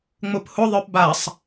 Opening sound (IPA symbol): ŋ͡m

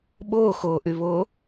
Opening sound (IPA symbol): ɓ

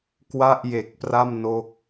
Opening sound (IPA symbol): k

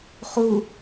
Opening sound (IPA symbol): χ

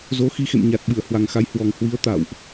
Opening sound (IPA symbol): z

